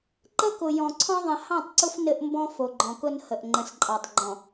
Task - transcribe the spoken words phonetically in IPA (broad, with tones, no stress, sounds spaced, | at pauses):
ǃ ə˦ k ʊ˨ j ɔ̃˨ ǀʰ ɔ̃˦ ðˤ ə̃˨ h ɑ̃˦˨ tˤ ǀ ʊ˦ f n ɘ˦ ʔ m b ɔ̃˦ f o˨ ɡ͡ǃ ɔ̃˨ k ʊ˦ n h ə˨ ʔ ŋ͡ǃ ə̃˨ s ǃʼ ɑ˨ tˤ ɡ͡ǃ ɔ̃˨